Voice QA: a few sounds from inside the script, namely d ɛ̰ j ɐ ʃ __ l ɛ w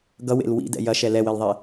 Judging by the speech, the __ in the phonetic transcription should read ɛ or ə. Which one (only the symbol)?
ɛ